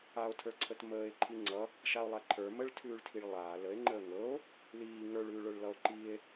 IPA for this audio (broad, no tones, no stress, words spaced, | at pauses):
ao̯tʰə˞ǀʰət məːe̯ ǃʰiŋ͡ǀʌ | ʃao̯lˠaǃʰə˞ məɭtʰʉːɭtʰiɭ lˠaː ləe̯ŋ͡ǃəː ŋɤo̯ | liː ŋə˞ɭʉːɭə˞ɭ lʌo̯ǃie̯